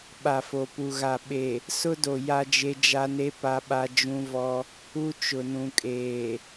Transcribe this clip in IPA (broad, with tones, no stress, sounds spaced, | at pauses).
ɓ a˨ f o˨ p u˨ ɣ a˨ ɓ e˨ | s ʊ˦ d o˨ j a˦ d͡ʒ e˦ d͡ʒ a˦ n e˦ p a˦ ɓ a˦ d͡ʒ ũ˦ v ɔ˦ | u˦ t͡ʃ ʊ˨ n ũ˨ kʼ eː˨